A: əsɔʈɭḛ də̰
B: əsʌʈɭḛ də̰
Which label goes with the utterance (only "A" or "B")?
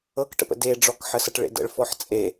B